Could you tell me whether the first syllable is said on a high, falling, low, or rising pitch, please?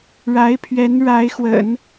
rising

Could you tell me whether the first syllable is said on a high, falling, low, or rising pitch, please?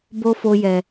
high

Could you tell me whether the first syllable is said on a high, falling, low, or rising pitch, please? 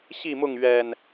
falling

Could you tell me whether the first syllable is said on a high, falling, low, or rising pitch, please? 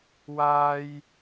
high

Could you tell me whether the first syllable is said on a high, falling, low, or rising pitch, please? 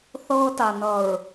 high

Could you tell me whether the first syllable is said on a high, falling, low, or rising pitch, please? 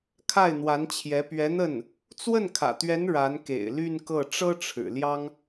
falling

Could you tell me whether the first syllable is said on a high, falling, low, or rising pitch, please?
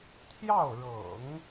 falling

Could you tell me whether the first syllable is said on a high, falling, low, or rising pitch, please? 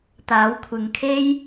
rising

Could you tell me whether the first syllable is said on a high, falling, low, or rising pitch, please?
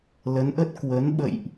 rising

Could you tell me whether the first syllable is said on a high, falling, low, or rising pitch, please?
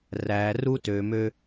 low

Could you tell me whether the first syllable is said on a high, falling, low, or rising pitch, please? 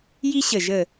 high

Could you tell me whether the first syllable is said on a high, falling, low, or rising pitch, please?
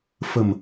low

